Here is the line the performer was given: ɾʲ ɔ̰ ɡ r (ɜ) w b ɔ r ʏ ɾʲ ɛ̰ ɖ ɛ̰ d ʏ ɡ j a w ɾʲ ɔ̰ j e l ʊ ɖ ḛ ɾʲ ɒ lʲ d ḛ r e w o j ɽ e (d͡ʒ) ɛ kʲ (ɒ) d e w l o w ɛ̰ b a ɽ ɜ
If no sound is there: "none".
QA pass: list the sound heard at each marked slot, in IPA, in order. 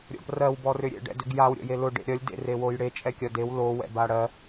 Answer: ɜ, t͡ʃʼ, ɒ

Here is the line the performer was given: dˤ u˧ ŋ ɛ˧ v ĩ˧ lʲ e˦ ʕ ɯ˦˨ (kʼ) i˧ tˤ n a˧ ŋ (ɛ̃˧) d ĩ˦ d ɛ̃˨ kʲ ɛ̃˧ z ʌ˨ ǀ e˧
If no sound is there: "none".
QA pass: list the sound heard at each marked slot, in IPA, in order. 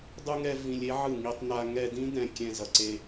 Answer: ŋ, ɛ˧

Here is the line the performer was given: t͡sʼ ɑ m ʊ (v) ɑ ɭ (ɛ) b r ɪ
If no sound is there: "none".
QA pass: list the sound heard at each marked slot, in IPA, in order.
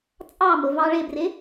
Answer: v, ɪ

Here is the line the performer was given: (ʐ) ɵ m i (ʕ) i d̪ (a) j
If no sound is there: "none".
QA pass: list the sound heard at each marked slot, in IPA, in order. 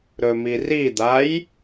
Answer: ɾ, r, a

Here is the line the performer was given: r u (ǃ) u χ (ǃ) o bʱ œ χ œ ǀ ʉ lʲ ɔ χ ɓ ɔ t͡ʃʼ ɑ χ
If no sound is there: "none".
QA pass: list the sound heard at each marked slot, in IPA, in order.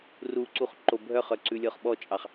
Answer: ǀ, ǃ

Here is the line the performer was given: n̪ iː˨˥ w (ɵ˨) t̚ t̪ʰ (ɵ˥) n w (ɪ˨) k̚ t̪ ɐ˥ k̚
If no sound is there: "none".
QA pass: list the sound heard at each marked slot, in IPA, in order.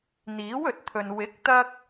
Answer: ɵ˨, ɵ˨, ɪ˨˥

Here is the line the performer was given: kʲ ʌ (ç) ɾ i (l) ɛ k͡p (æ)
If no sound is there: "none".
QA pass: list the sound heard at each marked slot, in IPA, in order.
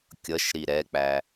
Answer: ʃ, ɾ, æ

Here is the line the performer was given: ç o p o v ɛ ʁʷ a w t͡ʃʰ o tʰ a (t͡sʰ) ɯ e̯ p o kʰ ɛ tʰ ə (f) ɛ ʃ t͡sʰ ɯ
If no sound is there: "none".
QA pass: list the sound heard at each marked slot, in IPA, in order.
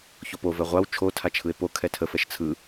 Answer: t͡ʃʰ, f

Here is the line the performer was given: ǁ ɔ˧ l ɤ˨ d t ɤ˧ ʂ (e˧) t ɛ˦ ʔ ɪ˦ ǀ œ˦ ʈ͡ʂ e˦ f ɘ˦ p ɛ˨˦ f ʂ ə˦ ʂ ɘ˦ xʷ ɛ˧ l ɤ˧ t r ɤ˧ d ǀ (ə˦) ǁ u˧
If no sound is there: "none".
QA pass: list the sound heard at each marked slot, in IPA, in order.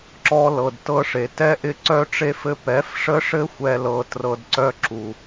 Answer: e˨, œ˦

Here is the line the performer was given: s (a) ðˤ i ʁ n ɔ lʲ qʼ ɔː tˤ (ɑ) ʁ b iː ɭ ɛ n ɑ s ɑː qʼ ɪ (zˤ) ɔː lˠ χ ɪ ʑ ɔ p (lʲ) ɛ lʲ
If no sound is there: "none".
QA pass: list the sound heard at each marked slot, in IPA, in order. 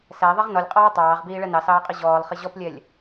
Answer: æ, ɑː, ʑ, lʲ

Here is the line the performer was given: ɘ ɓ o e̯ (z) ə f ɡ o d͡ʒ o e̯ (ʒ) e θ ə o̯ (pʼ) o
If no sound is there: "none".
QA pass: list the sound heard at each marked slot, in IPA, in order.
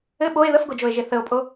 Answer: ð, ʒ, pʼ

